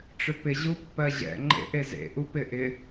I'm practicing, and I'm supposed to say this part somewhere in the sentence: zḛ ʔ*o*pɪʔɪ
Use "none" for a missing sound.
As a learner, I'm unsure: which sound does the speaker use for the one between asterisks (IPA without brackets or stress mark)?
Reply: u